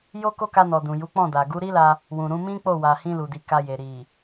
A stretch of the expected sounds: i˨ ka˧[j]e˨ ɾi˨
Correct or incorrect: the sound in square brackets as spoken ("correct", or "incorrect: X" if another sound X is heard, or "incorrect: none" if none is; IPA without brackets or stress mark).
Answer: correct